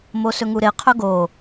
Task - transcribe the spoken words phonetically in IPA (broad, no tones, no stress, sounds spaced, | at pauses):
m o s ɵ ŋ u ɾ e qʰ ɵ ɡ o